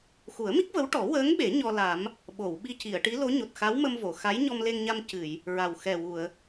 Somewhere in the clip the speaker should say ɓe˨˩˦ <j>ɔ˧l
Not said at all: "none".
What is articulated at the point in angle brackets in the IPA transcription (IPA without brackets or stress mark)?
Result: ɲ